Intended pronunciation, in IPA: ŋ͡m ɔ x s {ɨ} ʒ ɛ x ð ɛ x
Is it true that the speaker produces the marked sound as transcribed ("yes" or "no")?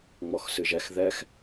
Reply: yes